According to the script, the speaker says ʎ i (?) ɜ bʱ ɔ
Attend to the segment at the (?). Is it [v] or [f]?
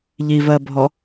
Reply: v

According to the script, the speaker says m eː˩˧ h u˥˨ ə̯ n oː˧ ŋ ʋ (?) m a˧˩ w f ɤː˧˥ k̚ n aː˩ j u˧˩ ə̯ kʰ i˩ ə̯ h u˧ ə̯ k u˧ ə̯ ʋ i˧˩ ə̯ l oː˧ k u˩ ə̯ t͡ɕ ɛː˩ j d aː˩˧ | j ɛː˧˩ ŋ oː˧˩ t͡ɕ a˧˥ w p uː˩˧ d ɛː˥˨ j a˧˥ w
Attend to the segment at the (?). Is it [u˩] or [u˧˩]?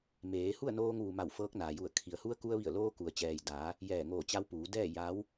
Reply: u˩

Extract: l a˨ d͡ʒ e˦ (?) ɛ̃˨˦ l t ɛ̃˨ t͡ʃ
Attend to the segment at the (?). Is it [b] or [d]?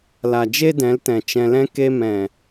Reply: d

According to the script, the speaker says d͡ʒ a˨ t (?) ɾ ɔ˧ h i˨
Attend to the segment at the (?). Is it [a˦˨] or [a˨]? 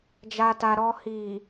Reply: a˨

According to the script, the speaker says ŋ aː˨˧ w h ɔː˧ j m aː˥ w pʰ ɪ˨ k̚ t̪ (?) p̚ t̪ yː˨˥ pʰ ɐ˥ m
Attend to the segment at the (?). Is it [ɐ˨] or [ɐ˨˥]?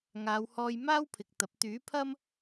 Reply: ɐ˨˥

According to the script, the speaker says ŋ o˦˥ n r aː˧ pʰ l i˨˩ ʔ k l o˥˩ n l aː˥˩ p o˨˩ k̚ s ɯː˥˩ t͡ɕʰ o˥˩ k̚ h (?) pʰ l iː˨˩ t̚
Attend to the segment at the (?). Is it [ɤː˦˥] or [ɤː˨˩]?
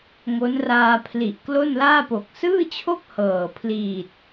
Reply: ɤː˨˩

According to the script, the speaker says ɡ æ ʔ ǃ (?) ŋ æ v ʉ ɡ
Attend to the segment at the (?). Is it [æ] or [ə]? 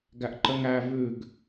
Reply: ə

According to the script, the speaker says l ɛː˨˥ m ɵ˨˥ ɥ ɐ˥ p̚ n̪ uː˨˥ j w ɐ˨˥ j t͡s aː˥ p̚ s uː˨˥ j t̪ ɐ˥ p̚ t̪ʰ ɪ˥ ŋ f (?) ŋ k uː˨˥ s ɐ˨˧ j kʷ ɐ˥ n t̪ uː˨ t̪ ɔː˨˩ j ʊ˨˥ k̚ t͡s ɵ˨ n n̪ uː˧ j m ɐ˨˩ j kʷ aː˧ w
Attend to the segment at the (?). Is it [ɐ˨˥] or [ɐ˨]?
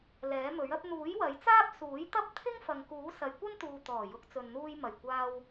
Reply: ɐ˨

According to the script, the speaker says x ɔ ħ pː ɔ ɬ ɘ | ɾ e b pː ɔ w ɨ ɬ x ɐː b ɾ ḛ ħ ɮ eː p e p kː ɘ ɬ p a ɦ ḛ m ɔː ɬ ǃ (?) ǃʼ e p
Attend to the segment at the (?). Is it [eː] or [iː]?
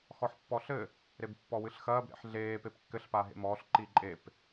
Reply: iː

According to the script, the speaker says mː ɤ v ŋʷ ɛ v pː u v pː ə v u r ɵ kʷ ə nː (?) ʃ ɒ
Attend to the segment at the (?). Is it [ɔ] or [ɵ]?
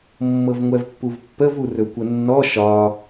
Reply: ɔ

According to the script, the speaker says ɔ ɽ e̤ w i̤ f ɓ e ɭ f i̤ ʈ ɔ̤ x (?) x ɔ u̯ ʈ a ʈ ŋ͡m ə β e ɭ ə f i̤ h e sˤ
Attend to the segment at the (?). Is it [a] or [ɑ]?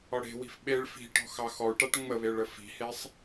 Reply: ɑ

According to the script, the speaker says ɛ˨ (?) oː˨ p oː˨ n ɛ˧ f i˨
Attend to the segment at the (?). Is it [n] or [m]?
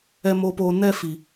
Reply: m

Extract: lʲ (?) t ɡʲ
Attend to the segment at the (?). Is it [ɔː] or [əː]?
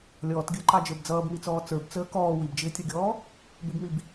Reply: ɔː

